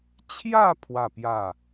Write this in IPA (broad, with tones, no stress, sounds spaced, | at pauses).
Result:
t͡ɕʰ j a˥˧ pʰ w a˥˧ p j a˥˧